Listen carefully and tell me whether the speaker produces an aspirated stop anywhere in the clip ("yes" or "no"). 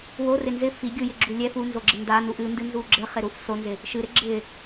no